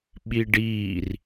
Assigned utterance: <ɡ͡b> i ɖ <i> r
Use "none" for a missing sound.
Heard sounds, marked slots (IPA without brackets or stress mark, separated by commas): ɓ, iː